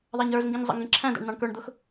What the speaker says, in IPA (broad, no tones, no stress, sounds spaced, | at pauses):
ðˤ æ ɲ ə˞ z ŋ ɡ ĩ ɲ zˤ ə̰ ŋ ɡ ĩ ǁʰ æ̃ d æ̰ ɳ n̪ ɑ̃ ɳ k ə˞ ɳ d̪ ʊ x